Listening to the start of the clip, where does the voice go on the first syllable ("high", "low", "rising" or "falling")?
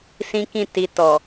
high